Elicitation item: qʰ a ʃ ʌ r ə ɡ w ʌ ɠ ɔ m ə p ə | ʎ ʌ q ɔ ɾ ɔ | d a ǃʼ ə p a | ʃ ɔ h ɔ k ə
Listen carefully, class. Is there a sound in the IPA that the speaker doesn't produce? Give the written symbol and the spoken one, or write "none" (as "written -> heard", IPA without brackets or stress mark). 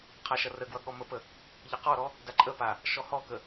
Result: none